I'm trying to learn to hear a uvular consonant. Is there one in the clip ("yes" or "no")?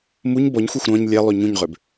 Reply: yes